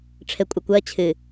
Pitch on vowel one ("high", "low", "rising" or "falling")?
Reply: low